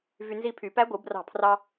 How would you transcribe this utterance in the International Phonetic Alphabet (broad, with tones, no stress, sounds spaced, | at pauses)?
v y˧ n z i˧ pʰ y˨˩˦ p æ˧˥ ɡʷ ɯ˨˩˦ b r ɑ̤˧˩ pʰ r ɑ˧